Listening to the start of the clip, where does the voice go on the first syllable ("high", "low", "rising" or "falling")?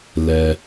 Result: low